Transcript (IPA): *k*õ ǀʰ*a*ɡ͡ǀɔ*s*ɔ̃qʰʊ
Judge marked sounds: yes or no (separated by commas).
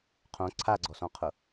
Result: no, yes, yes